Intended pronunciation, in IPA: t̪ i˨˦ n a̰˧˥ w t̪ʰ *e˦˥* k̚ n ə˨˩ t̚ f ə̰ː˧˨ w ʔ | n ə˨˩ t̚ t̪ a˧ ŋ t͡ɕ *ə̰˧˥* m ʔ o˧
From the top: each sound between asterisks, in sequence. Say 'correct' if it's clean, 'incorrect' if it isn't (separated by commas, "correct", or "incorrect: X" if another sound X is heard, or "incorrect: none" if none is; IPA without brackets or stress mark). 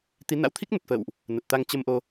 incorrect: i˦˥, incorrect: ə˧